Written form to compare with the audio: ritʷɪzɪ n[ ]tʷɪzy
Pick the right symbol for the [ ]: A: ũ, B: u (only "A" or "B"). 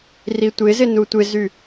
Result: B